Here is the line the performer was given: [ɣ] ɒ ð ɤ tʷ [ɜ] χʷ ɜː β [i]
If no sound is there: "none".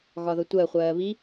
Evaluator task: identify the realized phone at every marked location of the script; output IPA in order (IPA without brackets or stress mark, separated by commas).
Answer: ɣ, ɜ, i